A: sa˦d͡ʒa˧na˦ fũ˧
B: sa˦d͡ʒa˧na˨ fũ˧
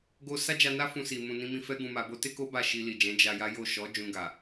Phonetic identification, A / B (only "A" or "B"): A